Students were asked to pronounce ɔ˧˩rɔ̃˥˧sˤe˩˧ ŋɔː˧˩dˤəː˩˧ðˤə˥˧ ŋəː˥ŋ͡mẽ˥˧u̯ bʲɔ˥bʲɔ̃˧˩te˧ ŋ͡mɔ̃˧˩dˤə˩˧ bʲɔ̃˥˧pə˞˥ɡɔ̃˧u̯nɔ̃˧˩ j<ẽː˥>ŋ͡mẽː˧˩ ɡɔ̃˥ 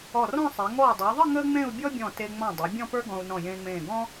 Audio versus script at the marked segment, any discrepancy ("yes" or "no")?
yes